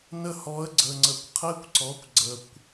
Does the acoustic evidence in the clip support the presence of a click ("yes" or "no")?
yes